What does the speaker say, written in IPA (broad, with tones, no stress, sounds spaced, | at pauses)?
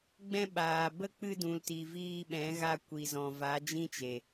ɡ͡b ɛ̃˧ ɓ aː˨ b ə˦˨ k͡p ɨ˧ d ũ˨ l t i˨ v iː˧ ɓ ɛ̃˨˦ ɣ a˧ kʷ i˨ z ɔ̃˨ v a˨˦ d͡ʒ ĩ˦ t͡ʃ e˨